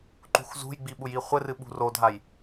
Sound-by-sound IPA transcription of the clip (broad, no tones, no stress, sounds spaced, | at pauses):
ǃ ṳ x z ṳ j ɡ͡b i ɓ u j i χʷ ɘ r ɨ ɓ ṳ r o dʱ a j